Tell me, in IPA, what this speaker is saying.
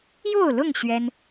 jo˥˨ʊ̯lʊ˥˨ŋ ɕɥɛ˦n

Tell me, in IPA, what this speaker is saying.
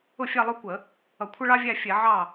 ʊ˥˩ fʲæ˥˧lˠʊ˥˧kʷə˧˩˧ | ʌ˧˩˧kʷʰʌ˥ɭɑ˥vʲæ˥˧ fʲɛ˧˩˧ʕɑ˥˩

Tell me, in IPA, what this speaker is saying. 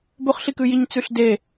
bɵχɬikʉjiɲ t͡sʉɬde

